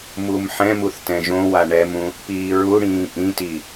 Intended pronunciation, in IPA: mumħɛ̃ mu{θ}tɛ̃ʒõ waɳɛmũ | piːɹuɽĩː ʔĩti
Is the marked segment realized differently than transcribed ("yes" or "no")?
no